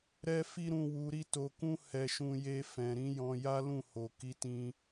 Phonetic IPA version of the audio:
ɾ ɛ˦ f i˦ ɾ ũ˧ w u˧ ɾ i˦ t o˧ k ũ˦ h ɛ˧ ʃ ũ˧ j e˧ f ɛ̃˨ ɾ ĩ˧ j ɔ̃˧ j a˦ l ũ˦˨ h o˨ k i˨˦ t ĩ˧

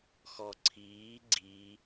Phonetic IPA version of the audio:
x ɔ ǀʰ iː ɡ͡ǀ i

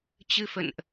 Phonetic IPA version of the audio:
t͡ɕ ɨ˧ f ə̰˧˨ n ʔ

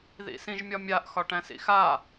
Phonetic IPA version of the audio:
ð ḭ s ĩ ʒ mʲ ɒ mʲ a ʔ x ɒ ʈ æ̃ s ḭ x a

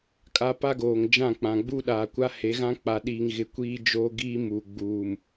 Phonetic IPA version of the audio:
kʼ a˦ p a˦ ɡ oː˨ ŋ d͡ʒ ã˦˨ k͡p ã˨ ɡ͡b u˦ ɗ aː˨ kʷ a˦ h e˨˦ ɣ ã˦ k͡p a˨ ɗ iː˨ ŋ ɣ ɪ˨ kʷ iː˦ d͡ʒ oː˦ ɡ iː˦ m u˨ ɡ͡b uː˨ m

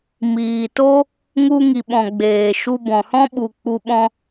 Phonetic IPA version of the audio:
m iː˨ t o˦ | ŋ u˧ ŋ i˨ ɓ ɔ̃˨ ɡ͡b eː˨ ʃ u˧ b ɔ̃˨ h ɔ̃˦ ɓ u˨ k͡p u˧ ɓ ɔ̃˧

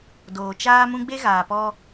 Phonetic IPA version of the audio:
d oː˨ t͡ʃ aː˦ m ũ˦ ɡ͡b e˦ ɣ aː˨ p ɔ˦

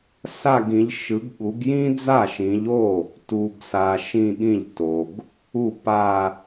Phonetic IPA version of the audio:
s a˥˧ ɡ ĩ˨˦ ʎ ʃ ɯ˨˦ ɡ ɠ u˨˦ ɡ j ĩ˥ d͡z a˥˩ ʃ ĩ˨˦ ʎ o˥˩ | t u˨ ɡ s a˨ ʃ ĩ˥˧ ɠ ĩ˥˩ ʎ t o˨ ɡ | u˥˩ p a˥˧

